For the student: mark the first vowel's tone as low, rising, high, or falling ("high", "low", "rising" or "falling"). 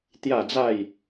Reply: falling